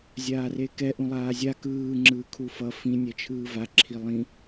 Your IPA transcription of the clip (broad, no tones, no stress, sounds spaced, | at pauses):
zʲ aː r e k ɛ ʔ ũ lˠ aː zʲ a k ɯː ŋ͡ǁ ɯː kʰ u f ʌ f ĩ nʲ ɛ t͡ʃʰ ɯː v a ǁʰ i lˠ ĩ